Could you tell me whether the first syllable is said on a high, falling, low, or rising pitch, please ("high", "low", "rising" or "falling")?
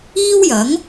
high